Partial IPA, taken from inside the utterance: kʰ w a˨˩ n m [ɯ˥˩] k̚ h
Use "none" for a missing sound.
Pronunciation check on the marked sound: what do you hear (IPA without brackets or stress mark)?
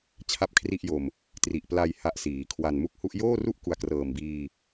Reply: u˥˩